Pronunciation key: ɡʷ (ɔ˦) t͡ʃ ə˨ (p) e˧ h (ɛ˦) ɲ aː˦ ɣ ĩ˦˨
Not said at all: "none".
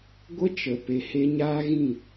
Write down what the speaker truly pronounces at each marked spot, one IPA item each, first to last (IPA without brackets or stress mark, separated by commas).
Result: ə˦, p, e˦